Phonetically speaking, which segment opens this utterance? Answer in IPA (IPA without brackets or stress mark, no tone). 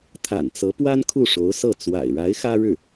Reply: t̪ʰ